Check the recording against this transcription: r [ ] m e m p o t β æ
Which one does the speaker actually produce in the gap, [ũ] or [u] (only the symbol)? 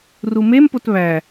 u